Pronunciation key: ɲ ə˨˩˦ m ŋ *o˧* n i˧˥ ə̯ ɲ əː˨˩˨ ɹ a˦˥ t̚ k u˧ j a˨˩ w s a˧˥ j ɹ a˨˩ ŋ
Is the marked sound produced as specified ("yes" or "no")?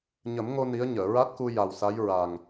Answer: yes